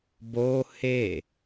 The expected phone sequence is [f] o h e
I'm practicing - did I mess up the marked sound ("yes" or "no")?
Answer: yes